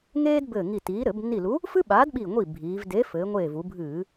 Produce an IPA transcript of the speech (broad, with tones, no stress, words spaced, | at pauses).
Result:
ŋeː˥dbɘː˧˩ŋi˧˩tiː˨˥ ɾɘ˧˩˧bnːi˧˩lu˨˥ | fɨ˥ɓaː˨˥dɓi˧˩ ŋʷi˥˩bʱiː˩˧v deː˨˥fɘː˩˧ŋʷeː˧˩ vu˩˧bʱɨː˧˩˧